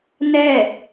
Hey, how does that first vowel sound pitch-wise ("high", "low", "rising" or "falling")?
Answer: falling